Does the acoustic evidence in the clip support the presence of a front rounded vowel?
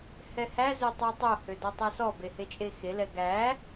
yes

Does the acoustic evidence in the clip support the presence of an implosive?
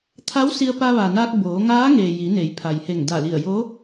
no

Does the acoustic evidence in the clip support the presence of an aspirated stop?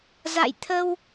yes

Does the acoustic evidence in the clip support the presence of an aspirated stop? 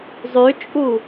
no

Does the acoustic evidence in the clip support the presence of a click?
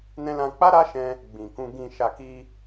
no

